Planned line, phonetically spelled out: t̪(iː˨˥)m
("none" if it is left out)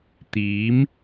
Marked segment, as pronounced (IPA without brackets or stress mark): iː˨˥